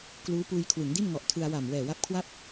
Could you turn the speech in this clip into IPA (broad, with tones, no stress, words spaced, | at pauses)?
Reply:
kluː˦˥puː˧jkʰwɯ˩˦ŋdi˥˩n ŋɔ˨˩ʔtʰɯ˧a̯wa˨˩m wɛː˨˩wa˦˥p̚ kʰwa˥˩p̚